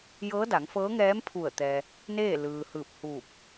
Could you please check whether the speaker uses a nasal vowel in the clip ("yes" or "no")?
no